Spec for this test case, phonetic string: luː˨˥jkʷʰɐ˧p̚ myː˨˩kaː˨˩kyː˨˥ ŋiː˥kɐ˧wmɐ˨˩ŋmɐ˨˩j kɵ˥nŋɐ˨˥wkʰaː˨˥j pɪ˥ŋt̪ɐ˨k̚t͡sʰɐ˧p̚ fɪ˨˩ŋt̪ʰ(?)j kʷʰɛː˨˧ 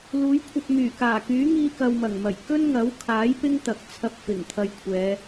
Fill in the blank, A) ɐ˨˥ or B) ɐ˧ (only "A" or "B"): B